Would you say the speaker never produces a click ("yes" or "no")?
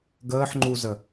no